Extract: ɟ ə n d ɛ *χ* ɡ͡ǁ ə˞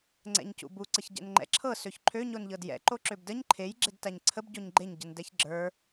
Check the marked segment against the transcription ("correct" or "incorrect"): incorrect